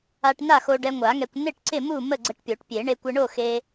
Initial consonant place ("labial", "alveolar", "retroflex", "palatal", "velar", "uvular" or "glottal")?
retroflex